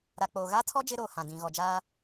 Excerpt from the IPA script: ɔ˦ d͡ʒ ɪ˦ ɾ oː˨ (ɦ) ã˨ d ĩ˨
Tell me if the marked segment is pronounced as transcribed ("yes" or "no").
no